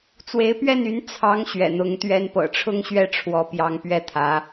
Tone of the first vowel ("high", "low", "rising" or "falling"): rising